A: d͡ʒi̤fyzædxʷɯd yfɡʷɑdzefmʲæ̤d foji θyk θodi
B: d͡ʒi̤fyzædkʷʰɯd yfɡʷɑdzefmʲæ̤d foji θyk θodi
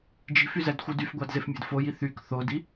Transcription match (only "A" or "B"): A